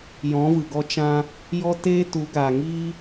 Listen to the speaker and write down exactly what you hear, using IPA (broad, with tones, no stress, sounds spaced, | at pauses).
j ɔ̃˨˦ v ɨ˨ ɡ ɔ˧ t͡ʃ ã˧ | j ɔ˦ t eː˦ t u˨˦ ɡ aː˨ ŋ iː˦